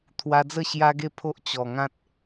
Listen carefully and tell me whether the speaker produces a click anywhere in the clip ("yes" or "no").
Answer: no